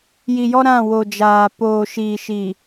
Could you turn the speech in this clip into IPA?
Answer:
ji˨jɔ˦ ɾã˦˨wo˨d͡ʒaː˨ poː˨ʃiː˨ʃi˨

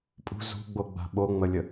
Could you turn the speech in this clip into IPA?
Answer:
pʼṳ zṳɡ͡boɡ͡ba̤ ɓoŋ͡məlʲə

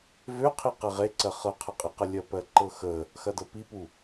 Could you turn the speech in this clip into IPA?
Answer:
vøqʰi qeʁeǀɜ χɤqʰəqʼiqə lʲɜpɜǃɤxə | xɐdɤpipu

